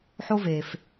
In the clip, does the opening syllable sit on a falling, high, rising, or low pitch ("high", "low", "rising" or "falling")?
high